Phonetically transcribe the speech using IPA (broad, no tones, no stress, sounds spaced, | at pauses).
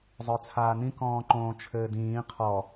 zˤ ə˞ t͡sʰ aː n ĩ k ɔ̃ː ǃ õː t͡ʃʰ ɘː d ĩː qʰ ɔ